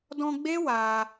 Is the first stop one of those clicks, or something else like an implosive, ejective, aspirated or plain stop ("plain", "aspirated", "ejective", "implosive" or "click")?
plain